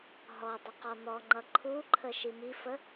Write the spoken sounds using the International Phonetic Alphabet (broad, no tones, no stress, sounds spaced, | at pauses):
ɦ ɔ dˤ ʌ q ɔ n̪ ɔ ŋ͡ǃ ʌ ǃʰ u ǃʰ ə ʃ i m i f ə